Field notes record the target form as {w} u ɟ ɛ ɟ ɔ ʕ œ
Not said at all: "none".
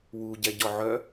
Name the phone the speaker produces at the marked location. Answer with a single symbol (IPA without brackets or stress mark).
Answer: w